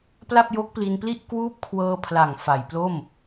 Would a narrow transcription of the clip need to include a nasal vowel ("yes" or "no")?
no